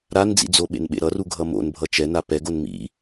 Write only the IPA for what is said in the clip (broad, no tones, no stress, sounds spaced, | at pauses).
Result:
ɾ a n d͡z ḭ d͡z o ɓ ḛ n ɓ ḛ ɾ ʌ r u ɡʱ ʌ m o̰ n bʱ ʌ t͡ʃ ɛ n a p ɛ ɡ o n m ḭ